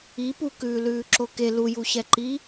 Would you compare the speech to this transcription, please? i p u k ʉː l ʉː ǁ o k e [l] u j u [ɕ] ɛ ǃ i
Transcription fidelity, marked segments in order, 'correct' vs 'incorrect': correct, correct

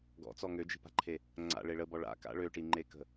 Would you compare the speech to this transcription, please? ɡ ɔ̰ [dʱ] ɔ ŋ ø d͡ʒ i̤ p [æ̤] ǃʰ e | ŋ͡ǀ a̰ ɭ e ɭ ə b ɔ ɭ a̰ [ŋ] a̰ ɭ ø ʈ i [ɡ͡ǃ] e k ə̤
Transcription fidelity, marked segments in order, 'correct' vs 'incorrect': incorrect: t͡s, incorrect: a̤, incorrect: k, incorrect: ŋ͡ǃ

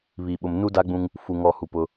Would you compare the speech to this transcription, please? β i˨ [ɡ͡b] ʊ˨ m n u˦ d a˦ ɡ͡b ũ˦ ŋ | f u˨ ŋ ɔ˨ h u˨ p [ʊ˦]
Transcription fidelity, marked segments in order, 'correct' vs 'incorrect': incorrect: ɓ, correct

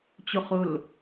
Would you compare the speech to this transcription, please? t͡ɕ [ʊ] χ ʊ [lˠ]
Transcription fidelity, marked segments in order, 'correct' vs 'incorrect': correct, incorrect: l

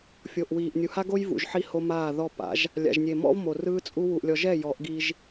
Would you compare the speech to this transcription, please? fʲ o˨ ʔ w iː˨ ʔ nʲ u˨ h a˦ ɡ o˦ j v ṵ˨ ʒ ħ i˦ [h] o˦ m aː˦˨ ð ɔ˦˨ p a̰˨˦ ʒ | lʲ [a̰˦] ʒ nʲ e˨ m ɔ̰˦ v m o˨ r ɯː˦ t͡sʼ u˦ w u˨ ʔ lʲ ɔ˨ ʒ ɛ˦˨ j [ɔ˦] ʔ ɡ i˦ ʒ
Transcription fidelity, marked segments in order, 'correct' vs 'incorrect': correct, incorrect: a̰˨, incorrect: ɔ˨˦

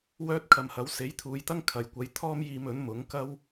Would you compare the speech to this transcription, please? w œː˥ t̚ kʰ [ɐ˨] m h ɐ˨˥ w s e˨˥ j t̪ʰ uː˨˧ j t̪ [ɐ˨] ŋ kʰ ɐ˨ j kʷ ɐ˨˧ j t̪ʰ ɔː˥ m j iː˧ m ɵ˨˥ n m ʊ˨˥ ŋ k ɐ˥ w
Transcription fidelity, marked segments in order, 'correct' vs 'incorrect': correct, incorrect: ɐ˥

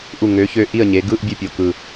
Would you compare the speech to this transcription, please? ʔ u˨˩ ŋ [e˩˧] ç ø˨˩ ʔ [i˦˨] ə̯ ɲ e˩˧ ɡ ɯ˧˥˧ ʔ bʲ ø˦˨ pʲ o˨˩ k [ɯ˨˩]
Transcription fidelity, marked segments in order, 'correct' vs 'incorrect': incorrect: ø˩˧, correct, correct

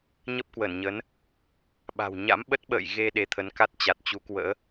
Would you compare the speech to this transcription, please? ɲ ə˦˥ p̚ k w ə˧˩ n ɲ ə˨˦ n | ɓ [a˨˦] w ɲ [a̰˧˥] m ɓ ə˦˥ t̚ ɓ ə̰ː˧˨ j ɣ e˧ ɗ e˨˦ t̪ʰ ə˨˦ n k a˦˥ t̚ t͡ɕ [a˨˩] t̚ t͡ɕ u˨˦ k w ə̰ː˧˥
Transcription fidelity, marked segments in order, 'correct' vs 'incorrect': incorrect: a̤˨˩, correct, correct

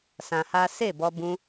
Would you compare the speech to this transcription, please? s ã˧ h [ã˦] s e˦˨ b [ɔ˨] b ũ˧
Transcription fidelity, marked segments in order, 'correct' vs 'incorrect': incorrect: a˦, incorrect: ɔ˧

